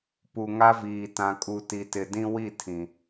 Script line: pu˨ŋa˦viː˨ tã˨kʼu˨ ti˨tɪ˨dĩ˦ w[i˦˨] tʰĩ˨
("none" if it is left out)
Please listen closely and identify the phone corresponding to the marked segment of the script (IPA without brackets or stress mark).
i˦˨